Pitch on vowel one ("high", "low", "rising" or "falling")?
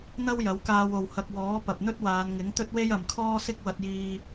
high